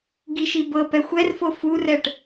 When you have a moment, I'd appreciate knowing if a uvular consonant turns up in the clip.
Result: no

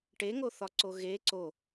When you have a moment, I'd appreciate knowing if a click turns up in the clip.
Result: yes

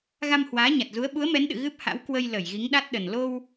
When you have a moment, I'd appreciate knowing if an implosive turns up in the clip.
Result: yes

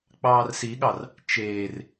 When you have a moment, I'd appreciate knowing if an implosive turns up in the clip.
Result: yes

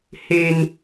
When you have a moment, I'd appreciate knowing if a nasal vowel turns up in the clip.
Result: no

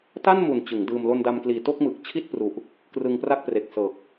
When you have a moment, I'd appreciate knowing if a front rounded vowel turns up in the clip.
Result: no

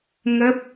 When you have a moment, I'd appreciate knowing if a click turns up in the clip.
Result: no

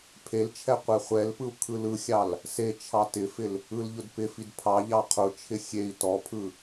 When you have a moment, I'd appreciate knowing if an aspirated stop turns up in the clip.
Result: yes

